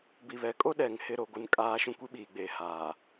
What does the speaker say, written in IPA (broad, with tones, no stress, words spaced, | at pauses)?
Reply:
bi˨βɛ˨kʼo˦ɗɛ˨ŋ hɪ˦˨ɾo˦˨ɡʷɪ˦˨n kʼaː˦ ʃũ˦kʷi˦ɓiː˨ɡ͡beː˨ haː˨